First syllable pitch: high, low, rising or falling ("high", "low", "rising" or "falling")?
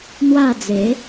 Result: falling